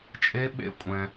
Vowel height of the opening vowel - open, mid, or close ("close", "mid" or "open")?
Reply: mid